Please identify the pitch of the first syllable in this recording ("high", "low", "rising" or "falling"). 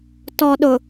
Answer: low